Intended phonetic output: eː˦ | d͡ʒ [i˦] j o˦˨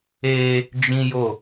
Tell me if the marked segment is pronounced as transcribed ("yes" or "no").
no